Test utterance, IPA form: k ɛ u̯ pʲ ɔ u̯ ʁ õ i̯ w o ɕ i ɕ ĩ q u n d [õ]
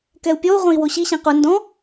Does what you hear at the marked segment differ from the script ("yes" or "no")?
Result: yes